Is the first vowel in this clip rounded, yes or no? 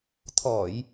yes